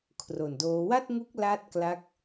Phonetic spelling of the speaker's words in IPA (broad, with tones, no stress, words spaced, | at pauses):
kʰro˨˩ndoː˦˥ wa˥˩t̚ŋu˦˥k̚ la˦˥t̚ kla˦˥k̚